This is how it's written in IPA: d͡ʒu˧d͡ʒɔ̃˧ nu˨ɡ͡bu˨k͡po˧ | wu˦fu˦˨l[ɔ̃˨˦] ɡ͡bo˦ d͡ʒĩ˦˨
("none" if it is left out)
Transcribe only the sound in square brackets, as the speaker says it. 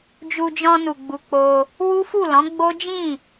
ɔ̃˨˦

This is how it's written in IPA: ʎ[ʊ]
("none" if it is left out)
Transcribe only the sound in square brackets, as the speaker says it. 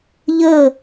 ə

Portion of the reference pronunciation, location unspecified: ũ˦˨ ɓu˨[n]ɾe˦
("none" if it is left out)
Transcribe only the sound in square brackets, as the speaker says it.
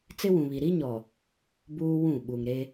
ŋ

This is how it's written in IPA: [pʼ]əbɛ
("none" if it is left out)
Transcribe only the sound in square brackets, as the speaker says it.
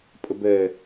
pʼ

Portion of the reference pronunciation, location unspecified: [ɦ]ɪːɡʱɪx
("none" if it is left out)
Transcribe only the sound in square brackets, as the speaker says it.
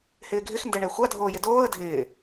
h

